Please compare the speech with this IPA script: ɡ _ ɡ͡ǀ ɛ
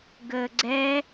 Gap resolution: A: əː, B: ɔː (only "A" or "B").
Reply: A